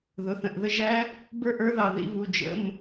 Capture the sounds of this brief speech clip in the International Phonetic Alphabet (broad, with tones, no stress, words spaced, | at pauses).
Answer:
ðʊ˩˧˩θə̃˩˧˩ʔðə˧˥ ʒæ˧˥ | bə˞˥ʔə˞˧˥ðɑ˩˧˩ ðḭ˥˩βu˩˧˩ d͡ʒə̰˩˧˩m